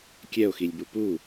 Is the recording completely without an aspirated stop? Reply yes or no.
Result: yes